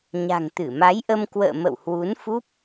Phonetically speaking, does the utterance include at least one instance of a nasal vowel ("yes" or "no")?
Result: no